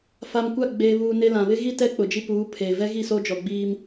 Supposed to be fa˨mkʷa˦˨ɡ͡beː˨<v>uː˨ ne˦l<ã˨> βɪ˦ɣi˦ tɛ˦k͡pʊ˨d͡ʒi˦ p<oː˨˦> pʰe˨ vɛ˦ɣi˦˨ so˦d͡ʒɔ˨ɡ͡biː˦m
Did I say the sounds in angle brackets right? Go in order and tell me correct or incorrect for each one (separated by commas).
incorrect, correct, incorrect